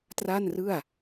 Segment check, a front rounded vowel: absent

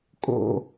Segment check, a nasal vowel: absent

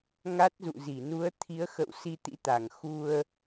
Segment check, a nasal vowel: absent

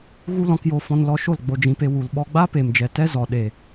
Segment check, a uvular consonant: absent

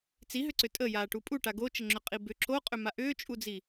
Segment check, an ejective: present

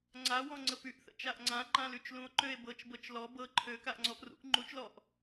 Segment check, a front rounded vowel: present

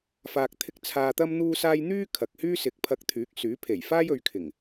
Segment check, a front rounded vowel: present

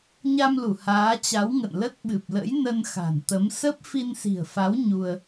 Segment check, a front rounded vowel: absent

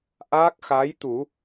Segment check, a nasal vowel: absent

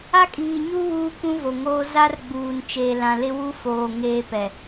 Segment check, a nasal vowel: present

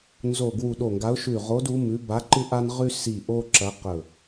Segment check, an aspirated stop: absent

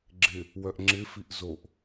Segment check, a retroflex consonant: absent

